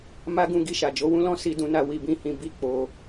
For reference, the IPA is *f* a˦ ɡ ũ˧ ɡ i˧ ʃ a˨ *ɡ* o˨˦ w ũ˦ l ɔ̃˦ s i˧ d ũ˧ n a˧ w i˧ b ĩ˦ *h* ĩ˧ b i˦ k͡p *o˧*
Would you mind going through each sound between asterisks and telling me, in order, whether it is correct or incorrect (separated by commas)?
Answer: incorrect, incorrect, correct, correct